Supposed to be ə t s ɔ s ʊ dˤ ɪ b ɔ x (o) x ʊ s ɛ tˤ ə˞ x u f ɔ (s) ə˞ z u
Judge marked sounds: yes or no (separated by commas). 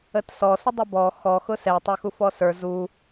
no, yes